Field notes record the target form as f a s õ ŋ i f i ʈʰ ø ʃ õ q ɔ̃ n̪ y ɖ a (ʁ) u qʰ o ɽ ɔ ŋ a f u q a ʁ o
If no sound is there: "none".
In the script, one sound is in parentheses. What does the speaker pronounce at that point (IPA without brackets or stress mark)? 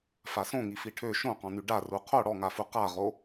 r